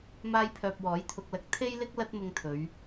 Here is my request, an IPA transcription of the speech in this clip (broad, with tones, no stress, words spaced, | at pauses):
maː˥jpʰœː˧p̚ wɔː˨˥jt̪ʰʊ˧k̚lɐ˧k̚ t̪ʰe˥jlɪ˥k̚ lɐ˥t̚mʊ˧ŋt̪ʰɵ˨˧ɥ